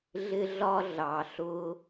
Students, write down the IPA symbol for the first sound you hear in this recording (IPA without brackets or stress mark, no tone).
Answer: ɮ